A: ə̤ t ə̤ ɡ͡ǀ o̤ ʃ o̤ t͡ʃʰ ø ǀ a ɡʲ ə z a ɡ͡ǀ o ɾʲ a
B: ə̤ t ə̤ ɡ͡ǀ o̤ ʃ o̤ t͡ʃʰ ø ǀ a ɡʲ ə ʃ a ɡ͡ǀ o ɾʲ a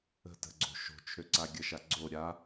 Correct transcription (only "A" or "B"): B